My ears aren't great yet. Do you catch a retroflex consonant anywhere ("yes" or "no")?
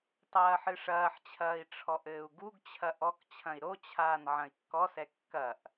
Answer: yes